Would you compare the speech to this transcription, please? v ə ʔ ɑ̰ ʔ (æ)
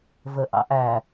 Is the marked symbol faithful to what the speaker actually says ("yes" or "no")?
yes